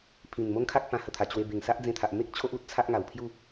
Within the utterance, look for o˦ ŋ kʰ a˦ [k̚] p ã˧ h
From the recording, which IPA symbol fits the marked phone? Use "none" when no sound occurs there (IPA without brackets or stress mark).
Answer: k̚